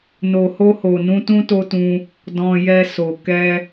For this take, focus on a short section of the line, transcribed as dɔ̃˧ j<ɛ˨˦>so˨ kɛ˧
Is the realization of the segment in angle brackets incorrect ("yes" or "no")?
yes